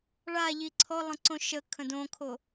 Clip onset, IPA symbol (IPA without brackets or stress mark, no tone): ɭ